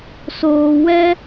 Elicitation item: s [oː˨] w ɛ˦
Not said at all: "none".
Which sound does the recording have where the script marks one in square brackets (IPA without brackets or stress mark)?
oː˨